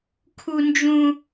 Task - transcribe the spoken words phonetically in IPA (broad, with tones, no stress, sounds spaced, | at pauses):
kʰ u˥ n d͡ʒ ũ˥